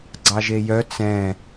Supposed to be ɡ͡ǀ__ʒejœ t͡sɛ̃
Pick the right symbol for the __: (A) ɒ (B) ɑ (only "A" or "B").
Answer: B